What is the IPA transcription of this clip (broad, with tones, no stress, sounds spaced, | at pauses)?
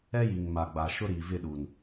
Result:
ɛ˦ j i˨ ŋ m a˨ ɡ͡b a˨ ʃ ʊ˦ ɾ i˨ v ɪ˦˨ ɗ u˨ n